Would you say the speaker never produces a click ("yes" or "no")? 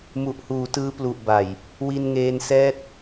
yes